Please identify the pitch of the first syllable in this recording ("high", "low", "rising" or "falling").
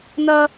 high